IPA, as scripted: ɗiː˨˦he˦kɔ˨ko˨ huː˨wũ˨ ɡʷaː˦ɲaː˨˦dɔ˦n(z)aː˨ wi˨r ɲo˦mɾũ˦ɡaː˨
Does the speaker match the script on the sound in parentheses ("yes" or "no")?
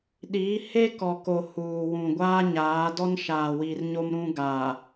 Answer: no